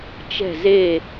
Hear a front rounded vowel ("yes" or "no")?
no